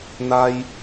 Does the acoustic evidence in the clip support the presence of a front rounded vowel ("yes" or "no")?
no